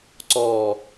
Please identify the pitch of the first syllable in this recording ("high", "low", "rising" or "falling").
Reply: falling